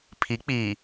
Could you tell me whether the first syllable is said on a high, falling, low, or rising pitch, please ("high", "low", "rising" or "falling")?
rising